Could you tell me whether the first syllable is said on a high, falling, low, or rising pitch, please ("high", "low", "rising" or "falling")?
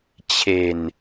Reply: low